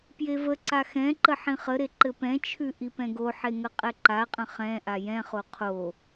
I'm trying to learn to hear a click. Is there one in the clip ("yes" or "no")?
yes